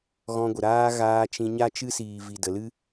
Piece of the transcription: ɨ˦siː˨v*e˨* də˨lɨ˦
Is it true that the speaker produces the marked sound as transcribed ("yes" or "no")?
no